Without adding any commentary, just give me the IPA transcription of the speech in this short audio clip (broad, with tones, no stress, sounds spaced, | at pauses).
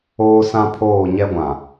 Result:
oː˦ s ã˦ pʰ oː˦˨ ɲ ɛ˦ ɡʷ ã˨